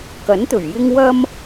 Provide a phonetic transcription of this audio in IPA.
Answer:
k ɐ˨˥ n t̪ ɵ˨˩ ɥ j ɪ˥ ŋ w ɐ˧ m

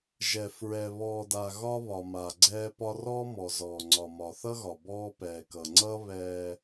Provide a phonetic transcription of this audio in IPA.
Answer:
ʒ ɛ˨ f ɹ ɛ˨ β ɔː˨ d a˨ ɣ ɒ˦ β ɒ˨ m a˨ ɡ͡ǀ ɛː˦ p ɒ˦ r ɔː˦ m ɔ˨ z ɔː˨ ŋ͡ǀ ɒ˨ m ɒ˨ θ ʌ˦ ɣ ɒ˨ b ɔː˦ p ɛː˨ k ʌ˨ ŋ͡ǀ ʌː˦ β ɛː˦

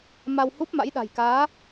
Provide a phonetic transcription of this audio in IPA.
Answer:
m a˧ w h u˦˥ p̚ m a̰˧˥ j ɗ a̤˨˩ j k aː˨˦

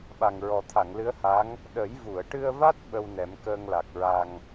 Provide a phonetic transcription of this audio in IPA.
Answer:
ɓ a˨˩ ŋ ɹ ɔ˨˩ t̪ʰ a˨˩˨ ŋ l ɨ˧˥ ə̯ h a˧˥ ŋ | ɗ ə˨˩˦ j v u˨˩˨ ə̯ ʈ ɨ˧ ə̯ v a˦˥ t̚ ɓ ə˧ w n ɛ˨˩˦ m k əː˧ ŋ l a˨˩ k̚ ɹ a˧ ŋ

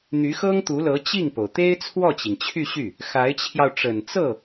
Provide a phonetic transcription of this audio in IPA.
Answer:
n̪ y˧˥ x ɤ˥ ŋ t̪ u˧˥ l ɤ˧˥ t͡ɕ i˥˩ ŋ p o˩ ʊ̯ t̪ e˥ ɪ̯ t͡sʰ w ɔ˥˩ t͡ɕ i˩ ŋ t͡ɕʰ y˥˧ ɕ y˥˩ | x a˧˥ ɪ̯ t͡ɕʰ j ɑ˧ ʊ̯ ʈ͡ʂ ə˨˩ n t͡s ɤ˥˩

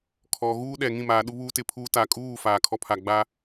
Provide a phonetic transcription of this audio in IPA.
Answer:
kʰ ɔ˨ ɣ uː˦ ɗ ɛ˨ ŋ ĩ˦˨ m aː˨ ɗ u˦ β uː˦ t ɪ˨ pʰ uː˦ t a˨ kʼ uː˦˨ f aː˨ kʰ ɔ˦ pʰ a˨ ɡ͡b a˦

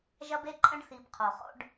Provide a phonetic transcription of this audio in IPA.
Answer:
ʒ ɐ˦ b e˦ ǃʼ ɐ̃˦ ɖ θ i˨ b qʰ o˨ χ o̰˦ ɖ

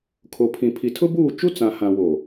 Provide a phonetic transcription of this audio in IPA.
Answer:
kʰ o˨ pʰ ĩ˨ pʰ i˨ tʰ ʊ˦ b uː˦˨ t͡ʃ u˦ t͡s ã˨ h ã˨ w o˨

